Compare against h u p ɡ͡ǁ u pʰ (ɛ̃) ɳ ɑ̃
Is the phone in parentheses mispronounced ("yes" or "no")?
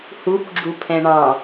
no